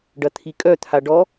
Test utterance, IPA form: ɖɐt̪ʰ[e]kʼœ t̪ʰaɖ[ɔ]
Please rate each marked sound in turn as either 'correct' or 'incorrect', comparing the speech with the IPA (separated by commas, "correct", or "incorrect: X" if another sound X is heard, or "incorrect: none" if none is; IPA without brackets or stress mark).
incorrect: i, correct